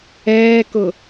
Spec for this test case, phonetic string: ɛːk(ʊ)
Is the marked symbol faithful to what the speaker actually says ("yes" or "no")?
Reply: yes